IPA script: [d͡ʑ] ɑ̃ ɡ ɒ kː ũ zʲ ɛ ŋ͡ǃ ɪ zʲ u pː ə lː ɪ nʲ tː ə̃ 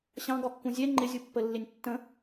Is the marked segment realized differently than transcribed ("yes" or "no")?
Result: yes